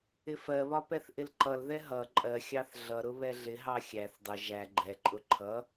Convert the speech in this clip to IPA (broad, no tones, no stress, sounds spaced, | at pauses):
ɪ f ɜ β ɒ p ɛ θ ʔ ɪ l ǃ ʌ l ð ɛ ɦ ʌ ǃʼ ɜ xʲ ɑ θ ɮ ʌ ɾ ʊ β ɛ ɮ ɪ ɦ ɑ xʲ æ θ dˤ ɪ ʒ æ ɡ͡ǃ ɛ ǃʼ ʊ ǃʰ ʌ